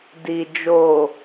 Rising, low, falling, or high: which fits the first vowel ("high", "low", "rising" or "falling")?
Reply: low